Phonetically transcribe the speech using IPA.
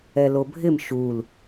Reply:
ɛ l o bʱ ɪ m ʃ u l

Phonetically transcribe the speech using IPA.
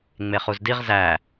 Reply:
ŋ͡m e χ u z d i ʁ z æ

